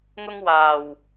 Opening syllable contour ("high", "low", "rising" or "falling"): high